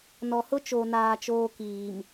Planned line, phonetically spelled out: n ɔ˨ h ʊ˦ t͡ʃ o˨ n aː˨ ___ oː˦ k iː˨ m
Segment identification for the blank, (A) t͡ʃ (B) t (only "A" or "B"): A